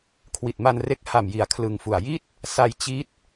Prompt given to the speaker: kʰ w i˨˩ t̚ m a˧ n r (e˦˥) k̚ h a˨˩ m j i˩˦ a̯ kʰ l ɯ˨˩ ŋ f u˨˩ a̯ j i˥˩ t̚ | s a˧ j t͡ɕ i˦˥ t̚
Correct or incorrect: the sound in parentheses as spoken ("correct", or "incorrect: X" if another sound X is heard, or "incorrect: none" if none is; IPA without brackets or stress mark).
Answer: correct